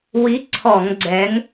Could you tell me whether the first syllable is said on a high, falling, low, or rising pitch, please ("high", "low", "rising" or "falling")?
rising